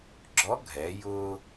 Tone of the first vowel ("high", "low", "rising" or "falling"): rising